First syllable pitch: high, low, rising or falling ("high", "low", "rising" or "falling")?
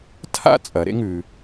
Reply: high